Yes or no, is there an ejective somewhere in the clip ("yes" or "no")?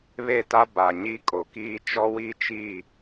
yes